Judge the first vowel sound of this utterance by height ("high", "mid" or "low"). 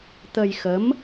mid